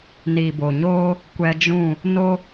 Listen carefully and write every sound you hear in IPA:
niː˨bo˨ɲoː˦ | kʷɛ˧d͡ʒũ˦˨ | no˦

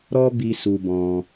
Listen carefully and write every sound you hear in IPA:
ɾɔ˦ bi˦su˧bɔ̃˧

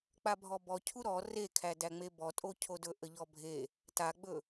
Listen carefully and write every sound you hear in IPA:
k͡pabʱɔbɔcʰu ɾɔ rekʰædæŋ͡me bɔtʼocʰodɵ ʔəʎɔbʱe | taɡ͡bɵ

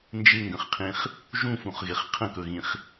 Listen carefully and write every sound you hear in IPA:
nd͡ʒɪŋɡə̃χqʰĩχ | ʒũfũχɣɪχ qʰə̃kɵɣĩχ

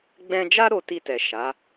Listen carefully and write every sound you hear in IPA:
ɡ͡bɛ̃˧d͡ʒa˦ ɾo˧ti˧tɛ˨ ʃa˨˦

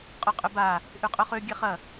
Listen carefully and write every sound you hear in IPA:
qʼʊqʼʏba | ʔyqʼœχø ɡʲɛχɐ

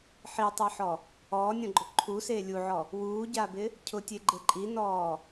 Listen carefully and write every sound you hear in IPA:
ħitˤɛħɔ | ɔːnʲɔ̃ɡ͡ǃʊ ǃʰuseː lʲuʕɔ | wuːɟabɪ | cʰʊtʲeɡ͡ǃe ǃʼinɔː

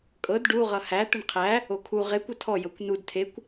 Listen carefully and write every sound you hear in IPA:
kʼɤd ɖuʁʌ hæ t̪eɳqʰæ | okʰu ʁe kʷɤtʰɔ jɤkʷnud tʰekʷ

